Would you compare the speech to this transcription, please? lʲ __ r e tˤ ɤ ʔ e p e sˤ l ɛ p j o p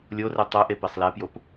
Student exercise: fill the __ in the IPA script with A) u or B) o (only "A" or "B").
B